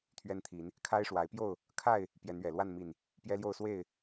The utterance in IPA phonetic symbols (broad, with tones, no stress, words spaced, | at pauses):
t̪ʰɥɛ˦nt̪ʰi˨˦n | kʰa˦ɪ̯ʂwa˨˦ɪ̯pjo˥˨ʊ̯ | kʰa˥˨ɪ̯ | pjɛ˨˦nɥɛ˨˩lwa˥˨n mi˨˩n | pjɛ˦ljo˥˨ʊ̯swe˥˨ɪ̯